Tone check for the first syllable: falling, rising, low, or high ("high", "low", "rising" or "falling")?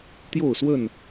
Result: falling